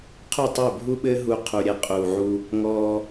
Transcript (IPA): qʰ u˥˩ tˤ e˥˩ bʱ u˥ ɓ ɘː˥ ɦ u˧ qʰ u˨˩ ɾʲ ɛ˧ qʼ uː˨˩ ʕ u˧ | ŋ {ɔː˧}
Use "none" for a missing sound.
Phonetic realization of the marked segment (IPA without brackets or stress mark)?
ɔː˧